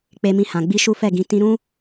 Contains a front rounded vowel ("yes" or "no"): no